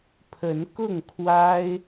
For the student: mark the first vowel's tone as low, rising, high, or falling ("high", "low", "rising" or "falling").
rising